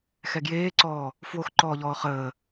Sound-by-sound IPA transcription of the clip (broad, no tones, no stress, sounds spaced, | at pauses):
x ɛ ɡ j eː ǀ ɔː | f w o x ǃ ɔː ʎ ɔː χ əː